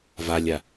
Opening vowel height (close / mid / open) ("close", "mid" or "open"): open